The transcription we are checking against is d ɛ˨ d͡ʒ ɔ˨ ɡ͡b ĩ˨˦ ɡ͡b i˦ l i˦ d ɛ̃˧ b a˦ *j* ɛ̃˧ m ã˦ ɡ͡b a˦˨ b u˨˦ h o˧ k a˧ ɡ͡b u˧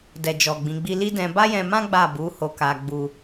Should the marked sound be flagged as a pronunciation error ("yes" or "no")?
no